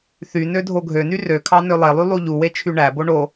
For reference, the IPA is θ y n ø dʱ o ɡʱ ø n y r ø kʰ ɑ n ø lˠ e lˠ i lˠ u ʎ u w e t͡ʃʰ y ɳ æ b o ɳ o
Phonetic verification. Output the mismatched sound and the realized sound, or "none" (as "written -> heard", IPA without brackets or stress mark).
i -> y